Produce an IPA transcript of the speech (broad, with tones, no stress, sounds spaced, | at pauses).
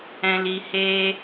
ɛ̃˨ l i˨ h eː˧